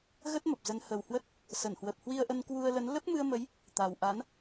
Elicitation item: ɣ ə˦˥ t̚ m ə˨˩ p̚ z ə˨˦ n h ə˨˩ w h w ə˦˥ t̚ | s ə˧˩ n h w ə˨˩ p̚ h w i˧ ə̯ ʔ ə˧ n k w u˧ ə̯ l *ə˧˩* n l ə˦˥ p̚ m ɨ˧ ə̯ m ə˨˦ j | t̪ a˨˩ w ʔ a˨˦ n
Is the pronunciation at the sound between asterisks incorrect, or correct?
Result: incorrect: ə˨˦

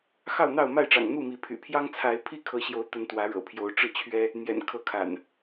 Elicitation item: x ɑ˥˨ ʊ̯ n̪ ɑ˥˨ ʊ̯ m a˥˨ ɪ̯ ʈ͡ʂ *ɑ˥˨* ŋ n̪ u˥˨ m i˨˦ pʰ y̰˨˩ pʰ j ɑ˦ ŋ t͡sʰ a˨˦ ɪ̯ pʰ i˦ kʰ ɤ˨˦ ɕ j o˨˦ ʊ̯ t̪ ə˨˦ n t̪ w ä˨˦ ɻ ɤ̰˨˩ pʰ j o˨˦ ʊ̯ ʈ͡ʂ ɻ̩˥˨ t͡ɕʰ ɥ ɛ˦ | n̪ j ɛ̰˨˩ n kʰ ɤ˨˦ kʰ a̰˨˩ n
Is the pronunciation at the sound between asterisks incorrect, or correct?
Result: incorrect: ɑ̰˨˩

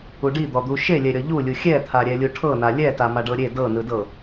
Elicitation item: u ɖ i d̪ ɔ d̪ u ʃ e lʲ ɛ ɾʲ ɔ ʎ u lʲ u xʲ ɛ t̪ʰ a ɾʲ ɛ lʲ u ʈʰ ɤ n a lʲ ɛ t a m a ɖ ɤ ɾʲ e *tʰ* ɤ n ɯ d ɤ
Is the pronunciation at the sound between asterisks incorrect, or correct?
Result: incorrect: d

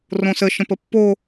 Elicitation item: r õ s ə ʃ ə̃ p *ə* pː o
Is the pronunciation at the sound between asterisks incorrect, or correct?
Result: correct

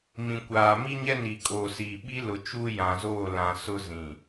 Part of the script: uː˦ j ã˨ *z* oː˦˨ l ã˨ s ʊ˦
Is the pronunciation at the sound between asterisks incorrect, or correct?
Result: correct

